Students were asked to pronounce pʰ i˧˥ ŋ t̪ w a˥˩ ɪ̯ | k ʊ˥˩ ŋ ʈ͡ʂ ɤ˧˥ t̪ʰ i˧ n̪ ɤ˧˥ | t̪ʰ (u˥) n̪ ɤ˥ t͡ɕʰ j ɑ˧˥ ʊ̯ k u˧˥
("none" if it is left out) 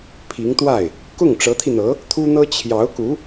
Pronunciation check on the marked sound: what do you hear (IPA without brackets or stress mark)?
u˥